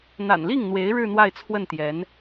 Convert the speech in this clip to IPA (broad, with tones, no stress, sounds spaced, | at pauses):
n̪ a̰˨˩ n l i˥˩ ŋ n̪ w e˧˥ ɪ̯ ɻ ɻ̩˥˧ n̪ w a˥˧ ɪ̯ t͡sʰ w ə˥˩ n t̪ j ɛ˧˥ n